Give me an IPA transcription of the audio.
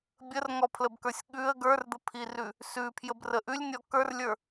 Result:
bʲ ə r ŋ ɔ pʰ l ə b k ə˞ sʲ ɠ ʉ ə̯ ɡ ə˞ r d̪ ə pʰ i r ʉ | s ʉ pʰ j ə b r ə ʔ ʉ lʲ nʲ ɔ k ə˞ r lʲ ə˞

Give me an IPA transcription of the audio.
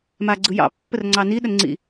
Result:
m a ɡ͡ǀ ɯ j ɑ̰ pː ə r ŋ͡ǀ ɑ n i ɗ ə n ŋ͡ǀ ḭ

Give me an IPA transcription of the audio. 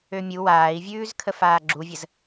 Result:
ø mʲ u w aː i̯ vʲ ʉː z kʰ ə f aː ɡ͡ǁ u vʲ ə z

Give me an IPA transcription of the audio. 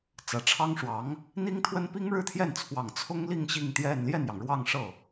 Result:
t͡s ä˨˩ ʈ͡ʂʰ ɑ˥ ŋ ʂ w ɑ˧˥ ŋ | n̪ i˥ ŋ t̪ʰ w ə˥ n p i˥ ŋ ɻ ɻ̩˥˧ t̪ʰ j ɛ˥˩ n t͡sʰ w ɑ˨˩ ŋ t͡sʰ ʊ˥ ŋ l i˥˧ ŋ ɕ i˥˧ ŋ t̪ j ɛ˥˧ n l j ɛ˥˩ n j ɑ˩ ŋ ɻ w ɑ˥˧ ŋ ʂ ɤ˥˩

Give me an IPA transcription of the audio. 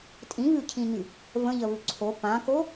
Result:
tʼ ĩ β ʉ cʰ ĩ ɲ y | v ə̃ ʎ ə β ʉ ǀʰ o p ã k o

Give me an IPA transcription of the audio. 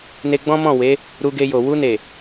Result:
n e˧ ɡ͡b ɔ̃˦ m ɔ̃˦˨ w e˨˦ | ɾ u˧ ɡ e˧ j o˨ w u˧ n e˨

